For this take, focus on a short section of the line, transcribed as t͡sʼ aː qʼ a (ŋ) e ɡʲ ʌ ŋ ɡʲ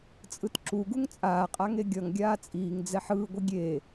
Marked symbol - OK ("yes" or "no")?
yes